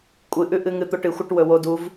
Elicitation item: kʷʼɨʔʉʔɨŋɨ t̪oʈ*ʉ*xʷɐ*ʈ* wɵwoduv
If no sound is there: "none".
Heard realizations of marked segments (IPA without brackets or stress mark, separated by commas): ɨ, ʈ